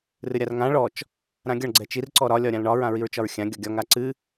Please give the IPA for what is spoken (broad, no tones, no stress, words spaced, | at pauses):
rɨɾʲarŋã ɭɔt͡ʃ | ɾãɡʲɒɳ ɡ͡ǀɛt͡ʃir ǀɔɾɒ lʲɒɾʲãlɳɒ ɹãɹiɹt͡ʃɒɹxʲã ɡʲɔɡʲɒŋ aǀɨ